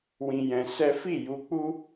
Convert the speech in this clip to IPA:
w ĩ˧ j ɛ̃˧ s ɛ˦ f i˦˨ j u˧ k͡p u˦

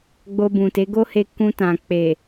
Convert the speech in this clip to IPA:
ɡ͡b o˧ b ũ˨ t e˨˦ ɡ o˦ h e˧ k ũ˧ t ã˨ k͡p e˨

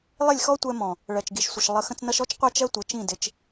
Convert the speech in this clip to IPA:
lˠ ɪ˦˨ lʲ x ɔ˦ tʷ ɛ˧ m ɔ̃˨ | ɭ ɜ˨ t͡ʃ ɡ i˨ ʃ sʷ ɪ˨ ʃ lˠ ə˨ x ə̃˧ t͡s n ʌ˧ ʃ ɔ˦ t͡ʃ qʷ æ˦ t͡ʃ ɜ˦ tʷ ə˨˦ t͡ʃ ĩ˦˨ d ɪ˧ t͡ʃ

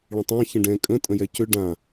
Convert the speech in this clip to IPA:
ɭ ə̃ tˤ ã ç ə̃ ɖ ɛ̃ kʼ ə̃ tʼ ə̃ j ɛ c ʏ ɖ ã

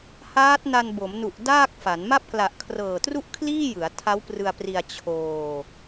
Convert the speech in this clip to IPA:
h aː˦˥ t̚ n a˧ n b o˩˦ m n u˨˩ ʔ d aː˥˩ k̚ f a˩˦ n m a˦˥ p̚ k l a˨˩ ʔ kʰ r ɤː˨˩ t r u˥˩ ʔ kʰ l iː˥˩ j ɯ˩˦ a̯ tʰ a˦˥ w p r ɯ˧ a̯ p r i˧ a̯ t͡ɕʰ oː˧

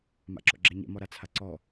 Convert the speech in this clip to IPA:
m a̰ ǁ ɔ̰ ɡ͡ǁ ɛ ɲ ɛ̰ m ɔ ɾ a t͡sʰ a ǀ ɔ

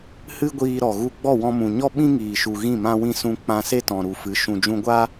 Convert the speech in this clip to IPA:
h ɨ˦ ɡʷ iː˧ ɾ ɔ˨ ɣ u˧ ɡ͡b ɔ˦˨ w ɔ̃˧ m ũ˨ ɲ ɔ˦ ɓ ĩ˦ ŋ iː˨ ʃ u˨ ɣ ĩ˦˨ m ã˧ w ĩ˧ s ũ˧ k͡p ã˧ s e˦ t ɔ̃˨ ɾ u˨ f ɨ˨˦ ʃ ũ˨ d͡ʒ ũ˧ ɡʷ a˦

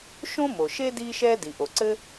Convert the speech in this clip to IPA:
ʃ õ˥ m o˩ ʃ e˥ d iː˥ ʃ ɛː˥ d i˩ ʔ o˩ ǀ ɘ˥

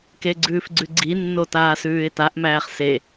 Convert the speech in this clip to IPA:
k e ɡ͡ǀ ʉː f ɡ͡ǀ ʉ ɡ͡ǀ i nː o t aː s ʉː ɪ̯ t a ʔ m æː χ s e

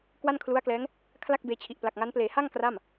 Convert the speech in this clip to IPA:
k w a˥˩ n kʰ l u˦˥ a̯ k l ɛː˦˥ ŋ | kʰ l a˥˩ k̚ b eː˧ t͡ɕʰ i˨˩ ʔ p l a˨˩ k̚ ŋ a˦˥ n p l eː˩˦ h a˥˩ ŋ k r a˥˩ m

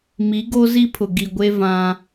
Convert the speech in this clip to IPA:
m i˨˦ ɡ o˦ z i˦ pʰ ʊ˨ ɡ i˨ ɡʷ e˦ v ã˦

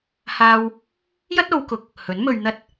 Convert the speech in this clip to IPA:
h aː˧ w | j ɐ˥ t̚ o˨˧ w k ʊ˨˥ k̚ | h ɵ˨˥ n m ɵ˧ ɥ n̪ ɐ˥ t̚

